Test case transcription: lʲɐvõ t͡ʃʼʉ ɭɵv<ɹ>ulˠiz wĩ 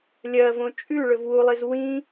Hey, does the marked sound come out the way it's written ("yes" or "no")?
no